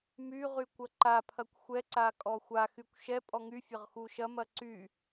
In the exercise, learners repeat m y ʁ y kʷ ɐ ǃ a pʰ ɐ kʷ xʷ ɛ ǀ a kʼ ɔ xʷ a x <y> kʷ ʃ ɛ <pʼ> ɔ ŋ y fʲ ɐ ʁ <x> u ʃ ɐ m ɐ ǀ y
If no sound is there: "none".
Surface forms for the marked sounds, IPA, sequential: y, pʼ, x

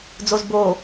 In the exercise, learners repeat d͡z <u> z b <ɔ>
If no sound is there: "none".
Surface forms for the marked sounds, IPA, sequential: o, o

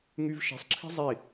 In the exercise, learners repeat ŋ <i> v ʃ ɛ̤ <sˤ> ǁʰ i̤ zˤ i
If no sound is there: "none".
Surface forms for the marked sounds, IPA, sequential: y, sˤ

